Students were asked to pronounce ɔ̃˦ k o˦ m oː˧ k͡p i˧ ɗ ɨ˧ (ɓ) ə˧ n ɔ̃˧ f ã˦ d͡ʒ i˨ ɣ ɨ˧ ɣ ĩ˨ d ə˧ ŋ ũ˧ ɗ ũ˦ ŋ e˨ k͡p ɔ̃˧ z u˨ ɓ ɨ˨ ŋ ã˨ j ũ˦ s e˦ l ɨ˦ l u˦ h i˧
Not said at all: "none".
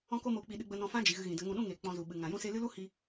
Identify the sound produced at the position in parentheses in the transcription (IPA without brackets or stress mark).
ɡ͡b